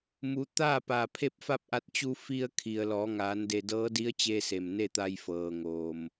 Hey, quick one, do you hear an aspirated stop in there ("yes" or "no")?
yes